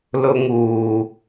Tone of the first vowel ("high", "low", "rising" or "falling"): high